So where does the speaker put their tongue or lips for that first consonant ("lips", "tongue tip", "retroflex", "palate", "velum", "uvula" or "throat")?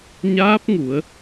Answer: palate